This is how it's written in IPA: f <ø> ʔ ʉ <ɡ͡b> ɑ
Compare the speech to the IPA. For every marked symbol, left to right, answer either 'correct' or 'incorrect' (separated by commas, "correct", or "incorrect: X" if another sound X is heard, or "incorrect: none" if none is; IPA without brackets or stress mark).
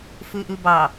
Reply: incorrect: ʉ, incorrect: b